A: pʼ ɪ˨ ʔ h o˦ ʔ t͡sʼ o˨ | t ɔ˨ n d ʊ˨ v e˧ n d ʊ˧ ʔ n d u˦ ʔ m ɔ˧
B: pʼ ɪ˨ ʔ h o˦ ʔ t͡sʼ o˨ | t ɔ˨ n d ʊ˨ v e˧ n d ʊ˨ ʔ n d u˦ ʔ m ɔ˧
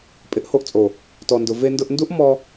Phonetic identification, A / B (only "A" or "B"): A